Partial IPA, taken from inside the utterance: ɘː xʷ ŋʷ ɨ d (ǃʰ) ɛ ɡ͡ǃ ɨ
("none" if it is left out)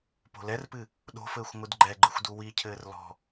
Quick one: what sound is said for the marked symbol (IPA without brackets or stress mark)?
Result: ɡ͡ǃ